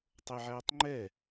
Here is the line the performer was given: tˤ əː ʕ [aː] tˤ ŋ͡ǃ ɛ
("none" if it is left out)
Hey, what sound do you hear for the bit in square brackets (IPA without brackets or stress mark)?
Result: æː